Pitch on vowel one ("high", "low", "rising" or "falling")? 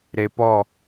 low